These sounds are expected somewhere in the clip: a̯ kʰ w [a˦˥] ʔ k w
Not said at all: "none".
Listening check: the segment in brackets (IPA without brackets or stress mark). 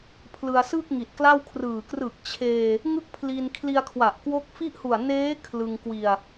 a˨˩